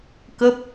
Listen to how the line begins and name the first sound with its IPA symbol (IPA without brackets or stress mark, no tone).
k